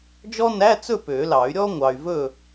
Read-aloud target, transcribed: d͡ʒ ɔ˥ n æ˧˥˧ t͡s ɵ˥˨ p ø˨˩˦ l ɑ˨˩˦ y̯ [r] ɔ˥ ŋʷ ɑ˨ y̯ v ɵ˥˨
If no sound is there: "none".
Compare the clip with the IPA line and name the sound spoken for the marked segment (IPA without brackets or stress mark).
ɾʲ